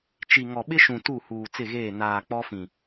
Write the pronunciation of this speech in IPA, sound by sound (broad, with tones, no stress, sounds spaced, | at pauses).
t͡ʃ i˨ ŋ ɔ˨ ɓ ɪ˦ ʃ ũ˨ t u˦˨ h uː˨ t͡s ɪ˦˨ ɣ eː˦˨ n aː˨ k͡p ɔ˦ f ĩ˨